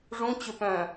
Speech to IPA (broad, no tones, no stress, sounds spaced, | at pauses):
ʐ ũ t͡ɕ ʏ p œ̃ː